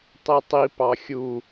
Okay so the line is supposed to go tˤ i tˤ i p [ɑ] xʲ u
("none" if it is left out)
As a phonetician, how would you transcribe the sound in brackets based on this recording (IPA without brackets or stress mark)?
ɑ